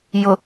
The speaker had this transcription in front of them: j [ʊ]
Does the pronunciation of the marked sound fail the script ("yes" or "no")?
no